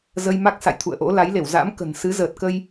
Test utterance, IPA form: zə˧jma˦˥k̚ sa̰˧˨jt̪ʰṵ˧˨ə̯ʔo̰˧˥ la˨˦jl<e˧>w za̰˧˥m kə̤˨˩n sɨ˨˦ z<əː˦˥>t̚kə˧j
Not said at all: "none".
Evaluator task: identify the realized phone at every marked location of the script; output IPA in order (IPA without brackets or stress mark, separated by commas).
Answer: e˧˩, əː˨˩